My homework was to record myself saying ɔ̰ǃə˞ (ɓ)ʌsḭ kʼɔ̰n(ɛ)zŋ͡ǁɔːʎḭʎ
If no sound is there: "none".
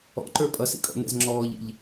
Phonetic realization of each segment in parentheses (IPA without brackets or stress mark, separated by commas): pʼ, ɛ̰